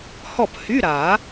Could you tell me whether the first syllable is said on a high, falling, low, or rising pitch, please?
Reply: falling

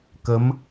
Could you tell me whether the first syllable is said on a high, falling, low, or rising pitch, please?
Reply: rising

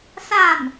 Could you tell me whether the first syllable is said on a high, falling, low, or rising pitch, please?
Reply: falling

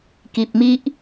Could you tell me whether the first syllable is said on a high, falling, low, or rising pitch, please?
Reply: low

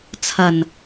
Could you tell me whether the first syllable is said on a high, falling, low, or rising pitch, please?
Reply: low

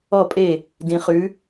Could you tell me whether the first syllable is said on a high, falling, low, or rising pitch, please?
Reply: falling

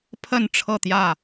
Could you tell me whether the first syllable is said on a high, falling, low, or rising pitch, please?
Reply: falling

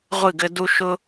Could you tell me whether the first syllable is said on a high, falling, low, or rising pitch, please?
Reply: falling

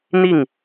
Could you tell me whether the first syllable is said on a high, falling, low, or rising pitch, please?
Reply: falling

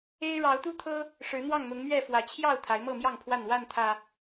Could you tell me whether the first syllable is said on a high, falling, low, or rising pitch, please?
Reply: high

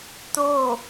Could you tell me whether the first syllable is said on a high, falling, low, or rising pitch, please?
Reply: falling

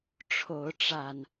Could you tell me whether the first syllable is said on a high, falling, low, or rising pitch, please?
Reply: rising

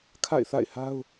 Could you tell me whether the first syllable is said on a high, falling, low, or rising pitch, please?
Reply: falling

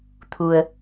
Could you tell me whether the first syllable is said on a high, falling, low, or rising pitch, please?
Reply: low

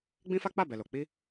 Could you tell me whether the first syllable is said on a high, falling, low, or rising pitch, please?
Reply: high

